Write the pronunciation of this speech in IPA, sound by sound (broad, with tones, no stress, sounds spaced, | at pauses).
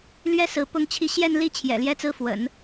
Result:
l ɥ ɛ˥ s ɹ̩˧˥ p ʊ˥ ŋ t͡ɕʰ i˥˧ ɕ j ɛ˥˧ n l i˥˩ t͡ɕʰ j ɛ̰˨˩ l j ɛ˥ t͡s ɹ̩˥˩ f w ə̰˨˩˦ n